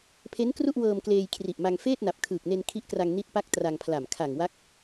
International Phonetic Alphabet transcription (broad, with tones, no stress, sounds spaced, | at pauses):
pʰ e˦˥ n k r u˥˩ ʔ w ɤː˧ m k l eː˧ j kʰ r i˨˩ ʔ m a˧ ŋ f eː˥˩ t̚ n a˨˩ p̚ kʰ ɯː˨˩ k̚ n e˧ n kʰ i˦˥ ʔ k r a˧ ŋ n i˦˥ t̚ p a˦˥ k̚ t r a˧ ŋ pʰ l a˨˩ m kʰ a˨˩ ŋ w a˦˥ k̚